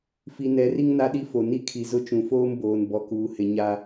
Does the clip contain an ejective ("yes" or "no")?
no